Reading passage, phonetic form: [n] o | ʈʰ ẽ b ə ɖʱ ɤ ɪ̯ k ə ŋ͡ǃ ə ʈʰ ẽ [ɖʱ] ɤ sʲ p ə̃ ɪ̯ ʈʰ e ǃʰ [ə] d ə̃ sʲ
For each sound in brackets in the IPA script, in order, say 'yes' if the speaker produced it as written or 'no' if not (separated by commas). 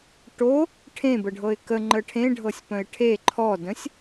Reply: no, yes, no